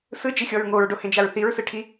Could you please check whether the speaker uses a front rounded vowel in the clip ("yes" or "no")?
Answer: no